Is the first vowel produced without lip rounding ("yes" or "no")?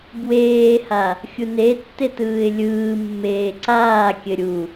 yes